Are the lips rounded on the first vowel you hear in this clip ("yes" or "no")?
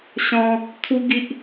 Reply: yes